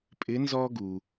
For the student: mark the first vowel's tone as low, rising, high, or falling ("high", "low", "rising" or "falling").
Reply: rising